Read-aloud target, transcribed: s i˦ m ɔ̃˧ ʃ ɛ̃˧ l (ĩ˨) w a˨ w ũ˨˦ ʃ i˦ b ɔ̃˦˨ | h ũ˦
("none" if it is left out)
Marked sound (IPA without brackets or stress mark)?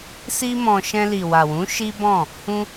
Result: i˨